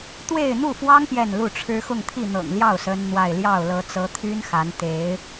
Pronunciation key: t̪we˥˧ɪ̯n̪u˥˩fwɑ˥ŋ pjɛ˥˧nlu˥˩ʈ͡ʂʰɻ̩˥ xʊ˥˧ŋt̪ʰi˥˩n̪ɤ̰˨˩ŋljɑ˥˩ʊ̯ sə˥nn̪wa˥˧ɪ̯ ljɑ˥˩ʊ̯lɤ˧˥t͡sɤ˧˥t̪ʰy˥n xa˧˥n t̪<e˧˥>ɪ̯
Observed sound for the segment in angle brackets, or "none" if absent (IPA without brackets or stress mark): e˧˥